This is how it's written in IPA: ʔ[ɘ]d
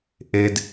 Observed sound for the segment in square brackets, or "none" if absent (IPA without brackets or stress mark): e